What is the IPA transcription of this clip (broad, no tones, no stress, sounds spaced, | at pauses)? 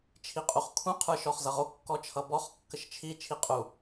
t͡ʃʰ i qʼ u χ kʰ ũ qʰ ə˞ ʃ ɔ χ z ʌ ʁ o kː ɔ t͡ʃʰ ʌ b ɔ χ kː ə ʃ t͡ʃʰ i t͡ʃʰ i qʼ u